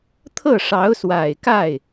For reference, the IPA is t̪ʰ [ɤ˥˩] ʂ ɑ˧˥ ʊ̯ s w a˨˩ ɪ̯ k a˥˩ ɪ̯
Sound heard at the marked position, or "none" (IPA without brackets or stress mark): ɤ˥˩